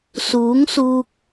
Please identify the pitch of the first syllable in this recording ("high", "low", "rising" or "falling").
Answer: rising